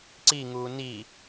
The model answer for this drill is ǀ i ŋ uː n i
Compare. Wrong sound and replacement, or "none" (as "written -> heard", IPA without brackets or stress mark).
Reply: none